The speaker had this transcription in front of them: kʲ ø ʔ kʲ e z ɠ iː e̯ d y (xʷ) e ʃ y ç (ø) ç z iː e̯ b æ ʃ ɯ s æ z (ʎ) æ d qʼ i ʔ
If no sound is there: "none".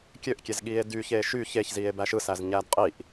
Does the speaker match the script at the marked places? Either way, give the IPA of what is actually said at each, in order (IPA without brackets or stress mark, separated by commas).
ç, e, ɲ